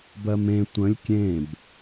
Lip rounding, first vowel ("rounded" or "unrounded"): unrounded